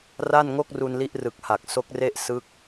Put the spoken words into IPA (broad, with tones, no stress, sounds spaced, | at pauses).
r a˥˩ n ŋ o˥˩ k̚ r u˧ n l i˦˥ ʔ r ɯ˨˩ k̚ h a˨˩ k̚ s o˦˥ k̚ r e˥˩ ʔ s ɯ˥˩ k̚